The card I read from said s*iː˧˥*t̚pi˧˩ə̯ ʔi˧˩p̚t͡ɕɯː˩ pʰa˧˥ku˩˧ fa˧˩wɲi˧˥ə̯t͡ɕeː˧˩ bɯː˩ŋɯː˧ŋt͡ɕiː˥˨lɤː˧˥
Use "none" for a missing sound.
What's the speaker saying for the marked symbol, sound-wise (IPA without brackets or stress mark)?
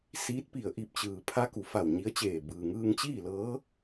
iː˧˥